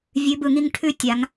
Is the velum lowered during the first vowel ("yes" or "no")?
no